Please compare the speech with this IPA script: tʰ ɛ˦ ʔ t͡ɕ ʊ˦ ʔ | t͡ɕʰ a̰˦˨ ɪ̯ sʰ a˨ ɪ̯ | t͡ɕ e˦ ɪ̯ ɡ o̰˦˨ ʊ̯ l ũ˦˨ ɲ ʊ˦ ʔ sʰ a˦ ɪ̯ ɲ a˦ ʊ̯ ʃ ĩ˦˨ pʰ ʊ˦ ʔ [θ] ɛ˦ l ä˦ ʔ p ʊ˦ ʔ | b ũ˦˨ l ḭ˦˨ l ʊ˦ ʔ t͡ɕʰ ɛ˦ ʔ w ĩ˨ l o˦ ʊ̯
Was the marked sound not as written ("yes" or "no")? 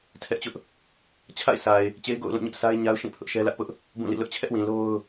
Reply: yes